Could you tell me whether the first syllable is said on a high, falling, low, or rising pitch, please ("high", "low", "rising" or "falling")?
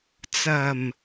low